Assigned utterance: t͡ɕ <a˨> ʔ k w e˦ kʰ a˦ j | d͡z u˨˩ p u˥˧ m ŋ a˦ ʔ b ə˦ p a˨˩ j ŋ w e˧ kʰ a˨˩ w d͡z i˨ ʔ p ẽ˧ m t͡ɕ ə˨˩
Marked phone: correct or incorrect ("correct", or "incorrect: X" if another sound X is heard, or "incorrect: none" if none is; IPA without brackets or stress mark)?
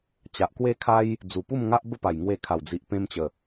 correct